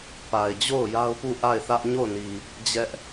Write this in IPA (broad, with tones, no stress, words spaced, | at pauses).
pa˨ɪ̯d͡ʑo˦˨ʊ̯ ja˦ʊ̯pu˦˨ ʔa˦˨ɪ̯θä˦ʔ ɲo˦˨ʊ̯ni˨ | d͡ʑɛ˦ʔ